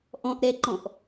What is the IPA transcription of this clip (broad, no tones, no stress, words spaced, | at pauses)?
ʔɔ̃ʔɾɛǃɔ̃ʔ